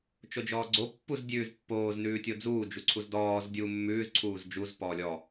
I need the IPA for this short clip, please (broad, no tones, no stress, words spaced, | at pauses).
t͡ʃod͡ʒɔːɡ͡ǀo pːuz dʲʉːzpːoːz nʉːtʲod͡zuː d͡ʒuǀʰuzdɔːz dʲuːmːʉːz ǀʰuːzd͡ʒuz pɔːlʲɔ